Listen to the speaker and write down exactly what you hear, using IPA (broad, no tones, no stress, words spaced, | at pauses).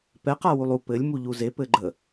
pɛq awulˠu pɘlʲ muʎuze pɘɡ͡ǃə